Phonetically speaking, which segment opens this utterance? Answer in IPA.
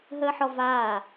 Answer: ɦ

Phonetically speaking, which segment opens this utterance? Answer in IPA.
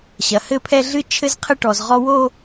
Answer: ɕ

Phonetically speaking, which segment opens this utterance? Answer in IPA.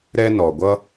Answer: ɾ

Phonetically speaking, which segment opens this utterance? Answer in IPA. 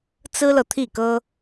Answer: t͡s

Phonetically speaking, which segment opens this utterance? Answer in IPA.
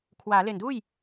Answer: kʰ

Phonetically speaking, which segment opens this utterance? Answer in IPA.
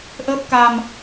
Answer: ʔ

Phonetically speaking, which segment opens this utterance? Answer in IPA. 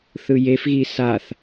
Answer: θ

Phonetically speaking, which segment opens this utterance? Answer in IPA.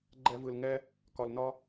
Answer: ɡ͡ǃ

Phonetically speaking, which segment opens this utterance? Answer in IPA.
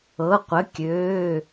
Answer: ɤ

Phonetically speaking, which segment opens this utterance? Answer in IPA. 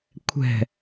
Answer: kʷʰ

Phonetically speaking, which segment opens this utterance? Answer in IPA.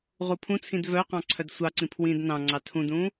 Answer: ʁ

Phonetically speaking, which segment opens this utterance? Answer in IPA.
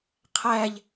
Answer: qʰ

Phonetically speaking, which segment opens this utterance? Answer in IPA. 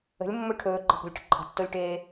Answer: ə̤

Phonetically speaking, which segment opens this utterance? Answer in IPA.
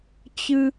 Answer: t͡ɕ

